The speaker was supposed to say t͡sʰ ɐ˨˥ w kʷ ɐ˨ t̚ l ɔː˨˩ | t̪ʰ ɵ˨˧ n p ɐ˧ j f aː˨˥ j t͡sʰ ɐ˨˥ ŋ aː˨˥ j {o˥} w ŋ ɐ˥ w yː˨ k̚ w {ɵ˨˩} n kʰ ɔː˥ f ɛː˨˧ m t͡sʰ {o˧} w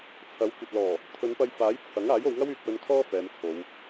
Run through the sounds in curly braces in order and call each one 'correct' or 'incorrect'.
incorrect: o˨˧, incorrect: ɵ˧, incorrect: o˨˧

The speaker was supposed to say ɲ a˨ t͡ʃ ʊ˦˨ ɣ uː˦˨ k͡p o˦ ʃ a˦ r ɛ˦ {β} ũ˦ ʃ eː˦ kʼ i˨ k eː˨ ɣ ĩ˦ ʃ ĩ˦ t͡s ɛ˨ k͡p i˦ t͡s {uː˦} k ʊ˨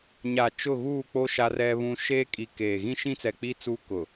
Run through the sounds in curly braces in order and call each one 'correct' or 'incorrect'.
correct, correct

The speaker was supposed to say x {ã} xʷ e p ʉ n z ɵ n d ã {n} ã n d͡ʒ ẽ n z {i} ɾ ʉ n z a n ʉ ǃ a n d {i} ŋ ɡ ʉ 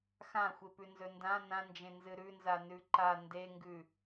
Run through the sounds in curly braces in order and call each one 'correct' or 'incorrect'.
correct, correct, incorrect: ɨ, incorrect: e

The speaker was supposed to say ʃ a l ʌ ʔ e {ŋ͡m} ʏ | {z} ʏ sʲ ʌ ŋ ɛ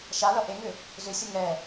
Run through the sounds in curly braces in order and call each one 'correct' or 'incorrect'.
incorrect: ŋ, correct

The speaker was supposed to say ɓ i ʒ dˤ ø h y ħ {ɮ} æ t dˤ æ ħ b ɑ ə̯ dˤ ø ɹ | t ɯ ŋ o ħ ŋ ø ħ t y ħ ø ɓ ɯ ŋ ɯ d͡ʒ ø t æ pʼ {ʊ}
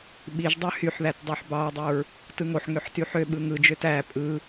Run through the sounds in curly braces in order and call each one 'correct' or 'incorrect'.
incorrect: ð, incorrect: ɯ

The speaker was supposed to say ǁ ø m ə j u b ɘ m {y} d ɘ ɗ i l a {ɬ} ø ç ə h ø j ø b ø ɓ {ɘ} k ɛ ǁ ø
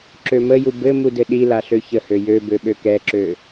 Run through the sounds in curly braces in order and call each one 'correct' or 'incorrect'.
incorrect: u, correct, incorrect: ø

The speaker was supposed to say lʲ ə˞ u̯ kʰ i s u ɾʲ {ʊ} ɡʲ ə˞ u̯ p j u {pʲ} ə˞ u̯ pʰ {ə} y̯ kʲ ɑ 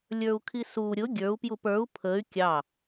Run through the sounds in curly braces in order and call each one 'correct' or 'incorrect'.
correct, incorrect: p, correct

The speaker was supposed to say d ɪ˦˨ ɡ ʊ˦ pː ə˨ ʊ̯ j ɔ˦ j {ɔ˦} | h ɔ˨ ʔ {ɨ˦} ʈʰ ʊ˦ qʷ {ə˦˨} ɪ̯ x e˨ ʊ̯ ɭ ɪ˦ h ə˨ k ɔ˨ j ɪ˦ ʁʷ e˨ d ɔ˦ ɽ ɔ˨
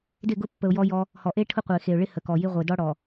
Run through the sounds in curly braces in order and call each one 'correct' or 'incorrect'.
correct, incorrect: e˦, incorrect: ə˨

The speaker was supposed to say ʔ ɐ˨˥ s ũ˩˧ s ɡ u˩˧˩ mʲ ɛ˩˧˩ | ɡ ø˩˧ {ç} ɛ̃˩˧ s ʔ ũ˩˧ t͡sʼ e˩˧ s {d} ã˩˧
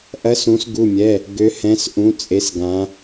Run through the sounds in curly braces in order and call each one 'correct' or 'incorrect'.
incorrect: h, incorrect: ɡ

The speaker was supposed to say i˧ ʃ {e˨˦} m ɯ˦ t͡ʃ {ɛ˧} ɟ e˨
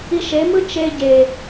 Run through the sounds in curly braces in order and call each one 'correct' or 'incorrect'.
correct, incorrect: e˧

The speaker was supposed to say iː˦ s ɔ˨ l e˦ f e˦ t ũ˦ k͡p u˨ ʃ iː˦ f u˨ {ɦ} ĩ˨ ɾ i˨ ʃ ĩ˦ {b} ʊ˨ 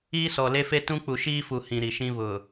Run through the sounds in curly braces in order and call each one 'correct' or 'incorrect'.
incorrect: h, incorrect: β

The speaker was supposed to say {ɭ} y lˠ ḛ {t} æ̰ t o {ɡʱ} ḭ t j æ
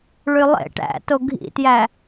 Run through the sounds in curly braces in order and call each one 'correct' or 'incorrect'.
correct, incorrect: ʈ, correct

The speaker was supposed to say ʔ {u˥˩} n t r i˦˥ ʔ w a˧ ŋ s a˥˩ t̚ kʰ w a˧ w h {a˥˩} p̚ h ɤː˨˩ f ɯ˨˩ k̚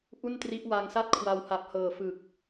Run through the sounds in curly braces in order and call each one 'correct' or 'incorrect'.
correct, incorrect: a˨˩

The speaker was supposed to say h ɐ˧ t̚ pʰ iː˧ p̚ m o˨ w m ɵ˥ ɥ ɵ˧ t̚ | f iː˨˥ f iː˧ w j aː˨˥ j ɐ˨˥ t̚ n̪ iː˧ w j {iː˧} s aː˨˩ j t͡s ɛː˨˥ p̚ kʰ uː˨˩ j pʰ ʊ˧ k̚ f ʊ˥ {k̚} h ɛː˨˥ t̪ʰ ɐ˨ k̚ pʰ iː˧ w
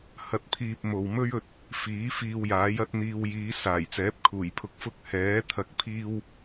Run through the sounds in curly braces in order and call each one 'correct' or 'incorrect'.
incorrect: iː˨˧, correct

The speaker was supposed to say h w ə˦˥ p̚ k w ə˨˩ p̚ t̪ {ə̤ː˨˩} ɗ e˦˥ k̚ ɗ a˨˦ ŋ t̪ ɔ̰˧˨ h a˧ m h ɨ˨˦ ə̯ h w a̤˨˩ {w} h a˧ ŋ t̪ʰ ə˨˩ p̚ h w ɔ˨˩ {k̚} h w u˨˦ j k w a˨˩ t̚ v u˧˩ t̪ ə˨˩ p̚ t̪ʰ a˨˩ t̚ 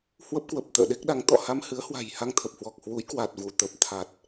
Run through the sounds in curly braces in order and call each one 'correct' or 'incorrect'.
incorrect: ə̰ː˧˨, incorrect: j, correct

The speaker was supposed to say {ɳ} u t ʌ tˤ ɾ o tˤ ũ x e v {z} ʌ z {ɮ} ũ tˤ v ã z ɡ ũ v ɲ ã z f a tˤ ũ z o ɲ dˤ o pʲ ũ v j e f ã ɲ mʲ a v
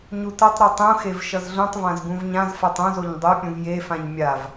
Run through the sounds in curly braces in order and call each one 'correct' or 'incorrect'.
incorrect: ɲ, incorrect: ʃ, correct

